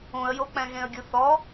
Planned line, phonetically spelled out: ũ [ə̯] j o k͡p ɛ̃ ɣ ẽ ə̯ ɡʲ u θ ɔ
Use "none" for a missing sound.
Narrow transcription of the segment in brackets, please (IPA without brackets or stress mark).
ə̯